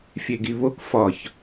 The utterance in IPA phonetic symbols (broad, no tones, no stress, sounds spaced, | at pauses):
fʲ e ɡ i β o k f ɒ ç